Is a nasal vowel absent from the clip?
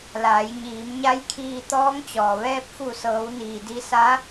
yes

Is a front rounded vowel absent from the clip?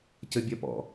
no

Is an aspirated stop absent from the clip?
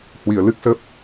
yes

